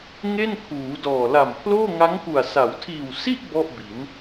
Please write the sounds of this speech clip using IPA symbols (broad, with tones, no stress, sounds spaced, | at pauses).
ŋ e˥˩ n kʰ uː˩˦ d ɔː˨˩ l a˨˩ m pʰ l oː˥˩ ŋ a˦˥ ŋ k u˨˩ a̯ s a˩˦ w tʰ iː˨˩ w s i˥˩ ʔ b ɔ˥˩ ʔ b i˩˦ n